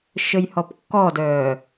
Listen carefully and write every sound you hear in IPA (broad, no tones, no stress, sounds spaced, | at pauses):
ʃ ɘ j h ɔ p kː ɔ d œː